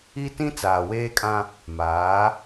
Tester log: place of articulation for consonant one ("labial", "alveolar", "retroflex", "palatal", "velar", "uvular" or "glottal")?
alveolar